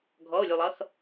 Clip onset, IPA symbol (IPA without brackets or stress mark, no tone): ɡʱ